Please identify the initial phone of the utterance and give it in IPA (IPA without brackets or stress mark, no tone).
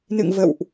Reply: n